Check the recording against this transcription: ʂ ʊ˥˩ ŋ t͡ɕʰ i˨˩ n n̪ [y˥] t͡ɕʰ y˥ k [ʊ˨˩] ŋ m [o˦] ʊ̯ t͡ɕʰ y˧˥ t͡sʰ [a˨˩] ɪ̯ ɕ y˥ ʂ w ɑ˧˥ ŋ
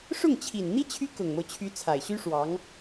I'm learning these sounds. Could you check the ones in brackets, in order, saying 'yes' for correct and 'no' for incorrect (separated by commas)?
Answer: no, yes, yes, yes